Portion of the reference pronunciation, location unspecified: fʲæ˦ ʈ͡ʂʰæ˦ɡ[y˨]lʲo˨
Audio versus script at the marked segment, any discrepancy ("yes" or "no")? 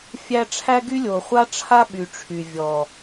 yes